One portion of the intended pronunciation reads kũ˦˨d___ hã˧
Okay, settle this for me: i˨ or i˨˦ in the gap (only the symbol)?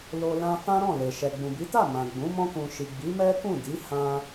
i˨˦